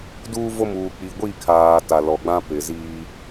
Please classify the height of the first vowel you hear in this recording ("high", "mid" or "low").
high